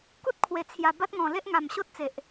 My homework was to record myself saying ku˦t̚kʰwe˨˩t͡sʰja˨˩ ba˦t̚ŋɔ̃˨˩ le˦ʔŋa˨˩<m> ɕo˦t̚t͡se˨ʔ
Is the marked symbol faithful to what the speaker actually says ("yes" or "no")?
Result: yes